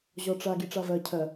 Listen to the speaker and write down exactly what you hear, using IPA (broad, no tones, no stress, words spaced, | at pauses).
ʑɔʈ͡ʂa ɡiʈ͡ʂavɜ cʰɜ